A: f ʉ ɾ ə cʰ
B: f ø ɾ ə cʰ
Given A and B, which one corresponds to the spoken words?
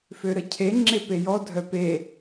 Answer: B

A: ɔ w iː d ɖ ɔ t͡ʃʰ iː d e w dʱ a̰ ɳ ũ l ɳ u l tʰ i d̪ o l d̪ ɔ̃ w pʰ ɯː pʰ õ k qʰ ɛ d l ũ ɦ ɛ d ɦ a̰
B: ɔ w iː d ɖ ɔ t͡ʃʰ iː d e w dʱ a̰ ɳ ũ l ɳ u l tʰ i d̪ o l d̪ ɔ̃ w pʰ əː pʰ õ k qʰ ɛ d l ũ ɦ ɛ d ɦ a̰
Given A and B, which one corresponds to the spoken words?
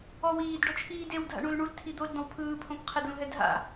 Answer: A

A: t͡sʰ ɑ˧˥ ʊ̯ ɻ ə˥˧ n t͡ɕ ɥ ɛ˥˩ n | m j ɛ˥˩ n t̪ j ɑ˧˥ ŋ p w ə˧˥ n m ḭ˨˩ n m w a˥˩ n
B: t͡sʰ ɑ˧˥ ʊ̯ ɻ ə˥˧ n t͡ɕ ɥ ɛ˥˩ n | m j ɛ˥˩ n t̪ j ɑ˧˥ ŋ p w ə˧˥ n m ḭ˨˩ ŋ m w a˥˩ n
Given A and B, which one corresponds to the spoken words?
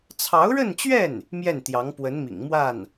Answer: B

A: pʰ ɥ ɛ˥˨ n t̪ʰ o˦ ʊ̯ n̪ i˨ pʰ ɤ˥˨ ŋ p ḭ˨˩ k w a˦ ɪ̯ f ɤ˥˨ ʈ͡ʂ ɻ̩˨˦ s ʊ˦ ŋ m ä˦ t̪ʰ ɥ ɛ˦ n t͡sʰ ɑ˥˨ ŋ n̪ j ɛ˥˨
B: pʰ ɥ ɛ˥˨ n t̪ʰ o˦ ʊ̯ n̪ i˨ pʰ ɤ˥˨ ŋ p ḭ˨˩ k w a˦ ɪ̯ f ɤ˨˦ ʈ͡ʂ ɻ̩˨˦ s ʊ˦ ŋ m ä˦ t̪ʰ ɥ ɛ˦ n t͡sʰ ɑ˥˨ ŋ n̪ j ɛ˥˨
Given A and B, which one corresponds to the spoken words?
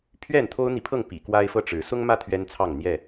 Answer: A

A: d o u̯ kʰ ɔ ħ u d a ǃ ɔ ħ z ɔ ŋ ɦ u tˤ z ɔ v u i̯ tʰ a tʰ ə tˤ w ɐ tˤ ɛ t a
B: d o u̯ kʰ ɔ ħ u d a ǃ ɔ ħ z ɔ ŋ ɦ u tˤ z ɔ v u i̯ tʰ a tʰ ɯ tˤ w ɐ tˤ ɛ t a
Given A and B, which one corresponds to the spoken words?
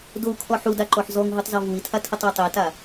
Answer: A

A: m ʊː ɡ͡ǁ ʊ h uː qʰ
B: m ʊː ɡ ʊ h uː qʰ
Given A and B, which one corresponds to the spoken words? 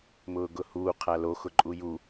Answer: B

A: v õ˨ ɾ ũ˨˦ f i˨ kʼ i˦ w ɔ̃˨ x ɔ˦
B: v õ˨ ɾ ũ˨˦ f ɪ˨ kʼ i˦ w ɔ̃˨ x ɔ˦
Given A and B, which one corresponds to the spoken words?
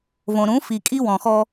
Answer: A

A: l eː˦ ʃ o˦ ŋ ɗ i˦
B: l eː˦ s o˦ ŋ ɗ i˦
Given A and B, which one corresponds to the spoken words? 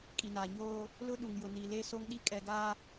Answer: B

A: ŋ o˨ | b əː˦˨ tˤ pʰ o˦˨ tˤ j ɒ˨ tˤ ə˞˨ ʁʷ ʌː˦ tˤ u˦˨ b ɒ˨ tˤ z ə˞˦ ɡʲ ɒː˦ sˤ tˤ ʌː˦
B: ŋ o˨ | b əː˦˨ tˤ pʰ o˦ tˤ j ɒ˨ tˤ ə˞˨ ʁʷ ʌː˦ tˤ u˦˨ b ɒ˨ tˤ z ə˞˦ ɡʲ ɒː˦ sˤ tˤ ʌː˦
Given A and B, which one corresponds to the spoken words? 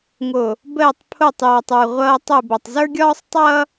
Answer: A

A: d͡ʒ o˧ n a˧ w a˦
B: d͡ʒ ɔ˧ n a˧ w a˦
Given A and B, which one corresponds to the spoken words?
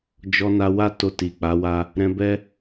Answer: B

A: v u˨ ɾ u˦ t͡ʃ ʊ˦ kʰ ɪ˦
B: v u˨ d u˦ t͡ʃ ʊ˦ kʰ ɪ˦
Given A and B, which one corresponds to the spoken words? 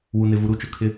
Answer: A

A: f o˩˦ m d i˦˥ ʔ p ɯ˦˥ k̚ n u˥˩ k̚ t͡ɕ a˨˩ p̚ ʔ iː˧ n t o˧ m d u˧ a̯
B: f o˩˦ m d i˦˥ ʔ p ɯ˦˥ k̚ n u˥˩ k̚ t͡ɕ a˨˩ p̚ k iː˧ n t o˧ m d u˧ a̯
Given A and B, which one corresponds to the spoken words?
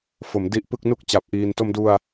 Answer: A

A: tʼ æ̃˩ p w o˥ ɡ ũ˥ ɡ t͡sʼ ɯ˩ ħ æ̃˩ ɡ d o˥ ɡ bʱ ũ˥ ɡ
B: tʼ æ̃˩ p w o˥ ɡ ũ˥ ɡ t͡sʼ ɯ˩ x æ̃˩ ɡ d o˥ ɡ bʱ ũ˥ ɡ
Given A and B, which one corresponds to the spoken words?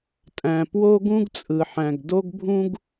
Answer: A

